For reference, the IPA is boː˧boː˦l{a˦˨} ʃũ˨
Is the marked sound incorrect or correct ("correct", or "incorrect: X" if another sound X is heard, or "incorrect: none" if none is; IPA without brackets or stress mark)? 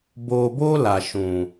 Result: incorrect: a˨